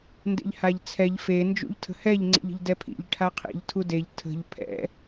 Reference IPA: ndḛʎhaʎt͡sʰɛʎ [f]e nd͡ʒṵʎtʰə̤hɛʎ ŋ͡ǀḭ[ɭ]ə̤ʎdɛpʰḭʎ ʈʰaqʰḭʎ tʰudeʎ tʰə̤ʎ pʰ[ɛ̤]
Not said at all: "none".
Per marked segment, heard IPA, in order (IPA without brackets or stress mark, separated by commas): f, ʎ, ɛ̰